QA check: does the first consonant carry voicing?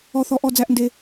no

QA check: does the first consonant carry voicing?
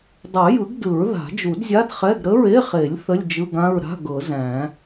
yes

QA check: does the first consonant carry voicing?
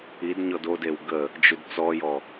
yes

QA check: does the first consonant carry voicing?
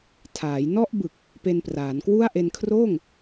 no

